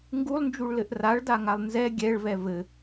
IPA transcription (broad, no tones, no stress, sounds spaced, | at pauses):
ŋ ɡ u lˠ n d͡ʒ u ɭ l ɘ ʔ r a ɭ d a ŋ a lˠ n z ɛ ɡʲ ɛ ɭ v ɛ v ɘ